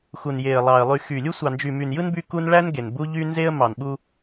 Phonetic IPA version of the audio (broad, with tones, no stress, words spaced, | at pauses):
xu˨nje˨ə̯lˠɑ˨ə̯ lˠy˨ xy˨lʲu˦ sʷɑ˨nd͡ʒy˨my˨njɯ˦n by˦ku˦n ɭæ˦n ɡe˨n bu˦ ʎy˦nze˦ə̯ mɑ˨nɓu˦